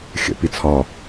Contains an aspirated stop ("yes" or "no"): yes